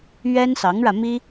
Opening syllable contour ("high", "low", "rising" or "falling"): high